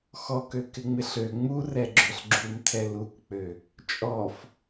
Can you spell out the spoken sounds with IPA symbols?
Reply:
xɔkøkɪŋ͡mɪɬ ø ŋ͡murɛɡ͡ǁøɬ ɡ͡ǁumtʰɛ lukk͡pø | t͡ʃʼɔf

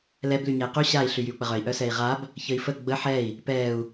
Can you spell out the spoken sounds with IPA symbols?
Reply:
lɛb lyɲɛi̯qy ɕai̯ ɬyjyu̯k͡pəʁœi̯ ʔœsɛi̯ʁab | çəi̯fə ɡ͡bə ħɛi̯ | pɛu̯

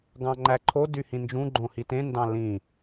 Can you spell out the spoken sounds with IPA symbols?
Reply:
ɡɑ̃ŋ͡ǃæǃʰo dyhĩnd͡ʒũ ɡ͡ǃõhitẽ ndɑ̃lĩ

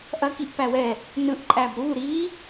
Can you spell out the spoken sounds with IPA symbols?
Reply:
ʔɐkiʔ pæwɛ | nɯʔ ǃʼæbɾu ɾi

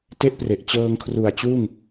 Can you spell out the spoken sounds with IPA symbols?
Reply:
te˦˥ʔpre˨˩ʔ t͡ɕɤː˧ŋkʰru˨˩a̯t͡ɕuː˥˩ŋ

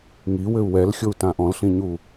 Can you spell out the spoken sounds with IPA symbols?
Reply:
ŋiwɘu̯ wɛlxʲou̯tã ʔɔ̃lɬĩɲu

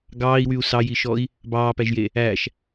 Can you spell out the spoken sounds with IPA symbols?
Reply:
ɡɑːi̯wyu̯ sɑjiʃɔi̯ | bɑːpæʒje | æʃ

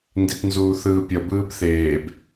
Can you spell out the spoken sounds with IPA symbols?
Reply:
nditnzuːθɯːpʲʌ bɯːbθeːb

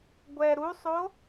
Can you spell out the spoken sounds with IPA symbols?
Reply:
ɡʷɛ ɾusˤo

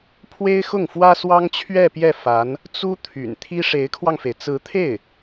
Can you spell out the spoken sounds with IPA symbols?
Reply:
pʰwe˥ɪ̯xʊ˥˩ŋfwä˥swɑ˥ŋ t͡ɕʰɥɛ˥˧pjɛ˥˩ fa˧˥n | t͡su˥ t̪ʰy̰˨˩nt̪ʰi˥ ʂe˧˥ɪ̯kʰwɑ˧ŋfe˩ɪ̯ t͡sɹ̩˧˥t̪ʰe˥˩ɪ̯

